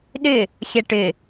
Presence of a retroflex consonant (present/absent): present